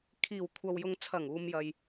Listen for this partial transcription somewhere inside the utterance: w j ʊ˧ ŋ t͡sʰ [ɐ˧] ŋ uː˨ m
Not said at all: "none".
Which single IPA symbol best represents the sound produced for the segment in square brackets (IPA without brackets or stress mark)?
ɐ˨˩